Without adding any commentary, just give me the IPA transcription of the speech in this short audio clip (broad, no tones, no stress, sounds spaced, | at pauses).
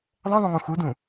ðˤ ɛ̃ ðˤ ũ ŋ ũ x u d ũ